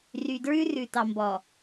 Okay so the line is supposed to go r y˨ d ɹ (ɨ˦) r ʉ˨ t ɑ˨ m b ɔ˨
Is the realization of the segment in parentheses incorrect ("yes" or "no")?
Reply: yes